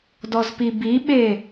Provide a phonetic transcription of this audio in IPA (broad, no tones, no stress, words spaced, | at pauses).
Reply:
dɔzpibiɓe